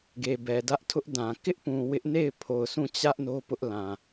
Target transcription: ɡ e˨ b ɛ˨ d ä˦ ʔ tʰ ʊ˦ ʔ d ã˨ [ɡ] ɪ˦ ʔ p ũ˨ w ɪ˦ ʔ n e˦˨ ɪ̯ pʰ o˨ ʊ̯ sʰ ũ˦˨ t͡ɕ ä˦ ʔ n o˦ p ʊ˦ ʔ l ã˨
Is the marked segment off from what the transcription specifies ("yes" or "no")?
yes